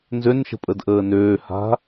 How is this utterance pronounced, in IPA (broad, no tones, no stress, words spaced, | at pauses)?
nzønʃə̤pʼədʔəː nøːha̤